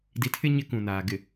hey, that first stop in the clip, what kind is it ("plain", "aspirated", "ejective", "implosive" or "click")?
plain